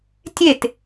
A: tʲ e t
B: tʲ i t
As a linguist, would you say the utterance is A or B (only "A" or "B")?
A